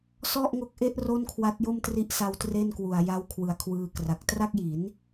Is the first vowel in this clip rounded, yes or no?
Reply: yes